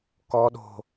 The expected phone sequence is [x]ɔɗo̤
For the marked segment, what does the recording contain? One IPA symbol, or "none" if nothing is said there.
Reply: k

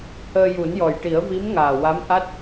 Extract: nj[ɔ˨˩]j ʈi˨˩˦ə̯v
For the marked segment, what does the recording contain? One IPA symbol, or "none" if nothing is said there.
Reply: ɔ˨˩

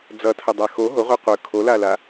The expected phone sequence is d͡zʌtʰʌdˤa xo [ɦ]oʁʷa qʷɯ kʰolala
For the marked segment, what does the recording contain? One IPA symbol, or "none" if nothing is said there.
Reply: ɦ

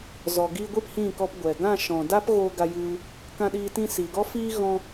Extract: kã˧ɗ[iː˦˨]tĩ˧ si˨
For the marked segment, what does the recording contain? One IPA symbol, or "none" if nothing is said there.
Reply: iː˧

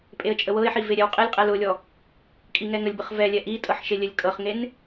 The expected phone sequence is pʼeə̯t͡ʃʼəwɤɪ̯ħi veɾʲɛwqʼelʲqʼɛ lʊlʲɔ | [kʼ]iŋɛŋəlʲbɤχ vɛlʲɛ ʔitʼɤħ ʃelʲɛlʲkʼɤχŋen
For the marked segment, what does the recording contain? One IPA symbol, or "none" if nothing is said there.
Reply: kʼ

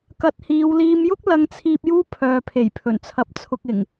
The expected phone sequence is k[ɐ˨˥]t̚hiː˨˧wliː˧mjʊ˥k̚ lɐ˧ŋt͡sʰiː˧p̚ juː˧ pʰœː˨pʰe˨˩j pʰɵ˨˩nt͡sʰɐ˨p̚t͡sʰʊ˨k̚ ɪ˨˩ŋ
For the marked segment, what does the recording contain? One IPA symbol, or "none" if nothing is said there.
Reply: ɐ˨˥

